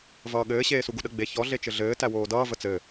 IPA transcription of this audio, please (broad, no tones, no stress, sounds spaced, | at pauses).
v ʌː ɠ ɘː ɕ eː s u ɡ u ɗ ə ɡ͡b e ç ɔ ɮ e t͡ʃ ɘ ɮ ɘː t æ w oː d ʌː v ə t͡s ɘ